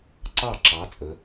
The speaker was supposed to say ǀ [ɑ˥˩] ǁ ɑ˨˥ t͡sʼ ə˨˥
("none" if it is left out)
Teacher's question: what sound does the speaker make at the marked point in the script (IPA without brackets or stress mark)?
ɑ˥˩